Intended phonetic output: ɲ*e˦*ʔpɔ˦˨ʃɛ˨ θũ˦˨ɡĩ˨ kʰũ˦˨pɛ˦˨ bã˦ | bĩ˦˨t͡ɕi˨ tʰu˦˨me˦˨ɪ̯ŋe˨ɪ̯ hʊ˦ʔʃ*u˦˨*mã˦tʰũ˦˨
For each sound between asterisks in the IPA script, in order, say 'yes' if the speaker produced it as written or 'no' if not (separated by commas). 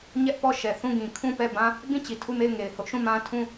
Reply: no, no